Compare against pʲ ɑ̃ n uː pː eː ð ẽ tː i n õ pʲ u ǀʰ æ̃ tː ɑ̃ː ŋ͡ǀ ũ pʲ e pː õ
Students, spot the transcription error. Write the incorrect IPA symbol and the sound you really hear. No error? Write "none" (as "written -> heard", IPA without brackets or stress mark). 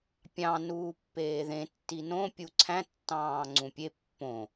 none